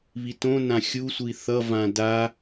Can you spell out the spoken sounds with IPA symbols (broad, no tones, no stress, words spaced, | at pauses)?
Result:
βitõnã xʲusʷi θʌvã da